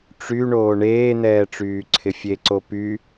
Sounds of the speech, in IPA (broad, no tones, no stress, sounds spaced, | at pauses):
ʈ͡ʂ y ɳ oː ɳ eː n̪ ɛː ʈ͡ʂ yː ǀʰ ɪ fʲ e ǀ o p y